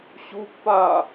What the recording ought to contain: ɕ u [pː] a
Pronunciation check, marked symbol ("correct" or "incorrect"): correct